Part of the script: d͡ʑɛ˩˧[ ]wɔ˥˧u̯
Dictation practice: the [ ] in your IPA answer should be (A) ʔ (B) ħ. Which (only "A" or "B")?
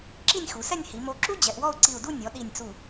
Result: A